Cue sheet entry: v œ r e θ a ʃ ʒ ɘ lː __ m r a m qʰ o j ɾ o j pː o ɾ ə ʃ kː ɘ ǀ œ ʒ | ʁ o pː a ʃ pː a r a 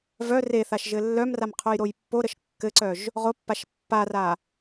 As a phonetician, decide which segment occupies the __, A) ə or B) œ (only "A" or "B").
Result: B